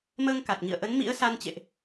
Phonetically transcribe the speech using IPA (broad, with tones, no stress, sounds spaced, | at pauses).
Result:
m əː˧ ŋ k a˨˩ t̚ ŋ ḭ˧˨ ə̯ ʔ ə˨˦ n m ḭ˧˥ ə̯ s a˧ n t͡ɕ ḛ˧˨ ʔ